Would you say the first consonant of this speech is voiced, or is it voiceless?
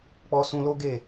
voiceless